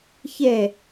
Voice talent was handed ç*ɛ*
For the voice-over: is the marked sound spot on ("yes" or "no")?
yes